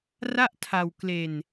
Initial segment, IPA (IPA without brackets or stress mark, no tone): r